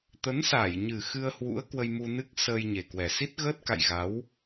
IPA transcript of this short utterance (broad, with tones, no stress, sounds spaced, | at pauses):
t̪ ə˨˦ n s a˧˩ j ɲ ɨ˨˩ x ɨ˧ ə̯ h w ṵ˧˥ ə̯ k w ə˧ j m u˧ n ɨ˦˥ k̚ s əː˧ j ɲ e˨˩ k w ɛ˨˩ s i˦˥ t̚ ɣ əː˦˥ t̚ k a̰˧˨ j ɣ a˨˦ w